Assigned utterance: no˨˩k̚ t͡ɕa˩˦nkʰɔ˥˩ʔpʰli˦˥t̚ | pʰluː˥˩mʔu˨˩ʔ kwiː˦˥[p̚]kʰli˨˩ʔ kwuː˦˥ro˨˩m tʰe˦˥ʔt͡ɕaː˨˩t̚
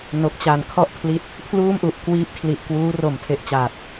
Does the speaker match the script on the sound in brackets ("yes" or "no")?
yes